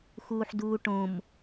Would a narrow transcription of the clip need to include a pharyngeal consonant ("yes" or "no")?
yes